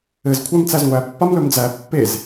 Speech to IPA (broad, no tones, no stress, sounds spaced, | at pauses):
ɘ z kʷʰ æ m t͡s æ z ŋʷ æ pː a m l ɵ m d͡z æ pː e z